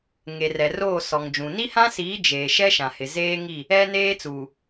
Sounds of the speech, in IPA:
ŋ e˨ r ɛ˨ r oː˦˨ s ɔ˨ ŋ d͡ʒ ũ˨ n i˦ h ã˦ s iː˨˦ d͡ʒ eː˨ ʃ ɛ˦ ʃ ã˨ h ɪ˨ z eː˦ ŋ i˦˨ | ɛ˦ n eː˦ t͡s uː˨

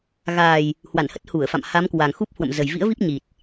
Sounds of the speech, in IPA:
ɣ aː˨˩ j | h w a˧˩ n h ə˦˥ t̚ h u˧˩ ə̯ f a̰˧˨ m h a˨˦ m k w a˨˩ ŋ x u˦˥ p̚ h w ə̰˧˨ m z ə˨˩ j v ḭ˧˥ ə̯ v i˦˥ p̚ ɲ i˨˩ t̚

